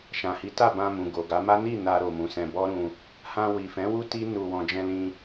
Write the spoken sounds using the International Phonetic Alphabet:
ʃ ã˨ h i˨˦ t a˦˨ b ã˧ m ũ˨ ɡ o˨ ɡ a˨˦ m a˦ n i˦˨ n a˧ ɾ o˨ m ũ˨ s ɛ̃˧ b ɔ˦ ɾ ũ˧ | h ã˧ w i˨ f ɛ̃˨˦ w u˦ t i˦ n u˧ w ɔ̃˧ d͡ʒ ɛ̃˧ l ĩ˧

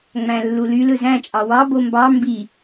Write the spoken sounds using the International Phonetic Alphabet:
ŋ͡m æ̃ lː u l y l ɯ z æ̃ t͡ʃʼ ɑ w ɑ b o m b ɑ m b i

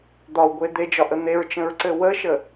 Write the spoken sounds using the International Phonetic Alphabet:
d̪ ɒ w ɡʷ e d̪ e d͡ʒ ɒ ʔ ə n̪ e ɹ t͡ʃ ə̃ ɹ ǀ ɘ w ə ʃ ə

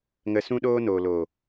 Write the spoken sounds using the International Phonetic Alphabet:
ŋ ə˧ s ũ˦ ɗ oː˦ n oː˨ l oː˨

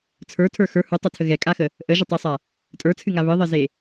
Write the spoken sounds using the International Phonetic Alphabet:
t͡sʰ ə˞ tʰ ə˞ x ə˞ h u tˤ ɛ tʰ ə ɣ ɛ kʼ a x ə | ʔ ə ʒ ə tˤ i sˤ a | tʼ ə˞ t͡sʰ ɨ ŋ a β ɨ ðˤ ə z e

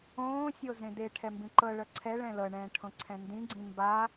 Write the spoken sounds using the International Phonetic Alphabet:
õː sʲ o z ẽ d e ʈʰ ɛ m b ĩ ǃ ɤ ɭ ɤ ǀʰ ɛ ɭ ɛ̃ l ɤ ɳ ɛ̃ː ʈʰ õ ǀʰ ɛ̃ n d ĩ ɡ͡ǀ ĩ m b a

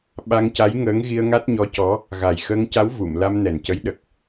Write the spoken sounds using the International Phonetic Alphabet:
ɓ a˧ ŋ c a˧˥ j ŋ əː˧˥ ŋ ɣ i˧ ə̯ ŋ a˦˥ t̚ ɲ ɔ˧˥ c ɔ˧˥ | ɣ a˨˩ j x əː˧ ŋ c a˧˥ w v u˨˩˨ m l a˧ m n ɛ˨˩ n c ə˧˥ j ɗ ə˨˩ k̚

